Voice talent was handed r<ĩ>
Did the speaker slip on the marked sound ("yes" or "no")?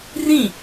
no